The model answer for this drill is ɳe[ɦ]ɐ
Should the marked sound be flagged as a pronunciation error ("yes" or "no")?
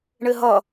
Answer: no